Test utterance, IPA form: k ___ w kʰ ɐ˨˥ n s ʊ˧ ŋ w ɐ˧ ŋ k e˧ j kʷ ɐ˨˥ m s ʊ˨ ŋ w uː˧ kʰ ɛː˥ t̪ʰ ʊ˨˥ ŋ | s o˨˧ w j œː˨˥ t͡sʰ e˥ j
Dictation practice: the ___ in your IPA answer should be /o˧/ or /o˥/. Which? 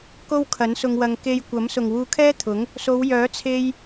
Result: o˥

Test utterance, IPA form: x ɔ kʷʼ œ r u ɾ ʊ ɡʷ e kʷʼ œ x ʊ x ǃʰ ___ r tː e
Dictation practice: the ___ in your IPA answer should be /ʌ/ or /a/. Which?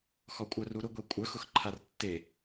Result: a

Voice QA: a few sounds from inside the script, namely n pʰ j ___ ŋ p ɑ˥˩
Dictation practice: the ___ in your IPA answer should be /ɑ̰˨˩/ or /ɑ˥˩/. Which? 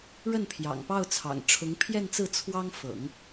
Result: ɑ̰˨˩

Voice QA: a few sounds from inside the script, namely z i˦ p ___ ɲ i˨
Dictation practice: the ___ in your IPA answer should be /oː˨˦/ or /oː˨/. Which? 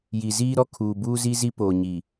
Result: oː˨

